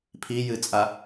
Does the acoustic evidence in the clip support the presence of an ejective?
yes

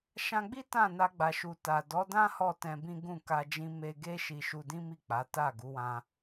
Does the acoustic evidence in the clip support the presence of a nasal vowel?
yes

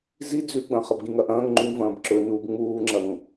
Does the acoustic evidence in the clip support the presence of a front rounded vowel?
no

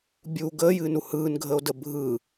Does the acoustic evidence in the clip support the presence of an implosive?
no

